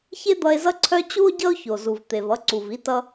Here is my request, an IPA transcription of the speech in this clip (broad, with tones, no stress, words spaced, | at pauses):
çe˥d̪ʌ˧e̯zʌ˥ǀʰœ˥ t͡ɕu˥o̯ɟʌ˥o̯ço˩ zu˩vt̪e˩vʌ˧ǀu˩v i˧tʌ˧